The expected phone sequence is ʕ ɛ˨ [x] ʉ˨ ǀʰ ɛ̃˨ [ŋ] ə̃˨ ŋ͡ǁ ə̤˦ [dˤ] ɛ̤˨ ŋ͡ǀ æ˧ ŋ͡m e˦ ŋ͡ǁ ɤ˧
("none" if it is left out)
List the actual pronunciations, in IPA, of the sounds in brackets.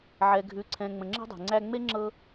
ɡʱ, ŋ͡m, dˤ

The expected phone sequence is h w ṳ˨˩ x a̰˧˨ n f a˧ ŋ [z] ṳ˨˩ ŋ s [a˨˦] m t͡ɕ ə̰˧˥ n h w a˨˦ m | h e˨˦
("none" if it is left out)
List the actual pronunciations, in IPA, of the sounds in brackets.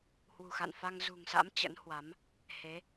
z, a̰˧˥

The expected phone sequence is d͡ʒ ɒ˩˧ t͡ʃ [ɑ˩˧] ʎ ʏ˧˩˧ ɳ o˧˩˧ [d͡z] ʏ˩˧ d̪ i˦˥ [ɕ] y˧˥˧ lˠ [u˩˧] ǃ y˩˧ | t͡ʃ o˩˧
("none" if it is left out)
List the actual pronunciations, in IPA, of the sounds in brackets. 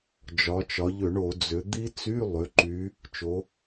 ɒ˩˧, d͡z, t͡s, ʏ˩˧

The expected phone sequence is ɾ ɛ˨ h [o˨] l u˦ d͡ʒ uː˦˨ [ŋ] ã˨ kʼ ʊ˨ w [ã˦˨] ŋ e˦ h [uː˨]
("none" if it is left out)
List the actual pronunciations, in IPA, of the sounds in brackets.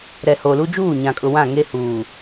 o˨, ɲ, ã˦˨, uː˨

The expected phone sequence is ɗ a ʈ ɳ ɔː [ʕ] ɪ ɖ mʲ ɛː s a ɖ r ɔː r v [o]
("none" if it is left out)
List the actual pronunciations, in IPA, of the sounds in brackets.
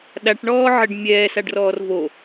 ʕ, o

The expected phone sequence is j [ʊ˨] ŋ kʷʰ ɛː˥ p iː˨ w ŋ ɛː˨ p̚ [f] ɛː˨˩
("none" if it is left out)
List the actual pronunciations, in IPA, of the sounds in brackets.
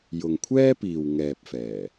ʊ˨, f

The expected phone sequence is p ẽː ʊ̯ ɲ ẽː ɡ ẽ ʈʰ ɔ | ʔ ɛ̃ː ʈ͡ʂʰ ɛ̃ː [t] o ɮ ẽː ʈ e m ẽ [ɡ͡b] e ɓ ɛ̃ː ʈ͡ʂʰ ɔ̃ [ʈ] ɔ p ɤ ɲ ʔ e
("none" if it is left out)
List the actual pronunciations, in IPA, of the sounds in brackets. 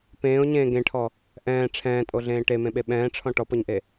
tʼ, ɓ, ʈ

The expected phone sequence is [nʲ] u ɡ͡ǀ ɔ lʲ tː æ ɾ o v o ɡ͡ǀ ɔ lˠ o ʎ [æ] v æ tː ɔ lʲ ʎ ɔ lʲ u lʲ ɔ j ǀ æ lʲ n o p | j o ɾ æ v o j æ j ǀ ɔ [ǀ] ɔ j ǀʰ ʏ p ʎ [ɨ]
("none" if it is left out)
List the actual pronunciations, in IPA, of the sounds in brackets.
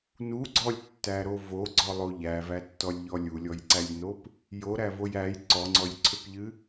n, æ, ŋ͡ǀ, ɨ

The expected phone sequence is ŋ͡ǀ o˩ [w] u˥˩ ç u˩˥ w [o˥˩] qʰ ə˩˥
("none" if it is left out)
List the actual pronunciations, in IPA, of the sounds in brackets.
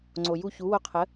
j, o˧

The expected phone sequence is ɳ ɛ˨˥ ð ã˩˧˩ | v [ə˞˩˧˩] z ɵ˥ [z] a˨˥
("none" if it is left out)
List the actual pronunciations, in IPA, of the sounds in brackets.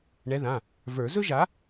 ə˞˨˩˦, ʒ

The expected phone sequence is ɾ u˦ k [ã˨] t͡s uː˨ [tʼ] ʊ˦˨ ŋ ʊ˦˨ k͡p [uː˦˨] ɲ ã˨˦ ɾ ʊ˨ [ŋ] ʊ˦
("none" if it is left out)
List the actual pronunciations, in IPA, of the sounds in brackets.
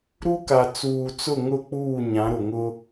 a˨, t͡s, uː˦˨, ŋ

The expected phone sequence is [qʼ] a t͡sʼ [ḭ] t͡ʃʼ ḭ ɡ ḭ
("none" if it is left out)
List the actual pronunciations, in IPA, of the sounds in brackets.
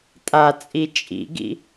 tʼ, i

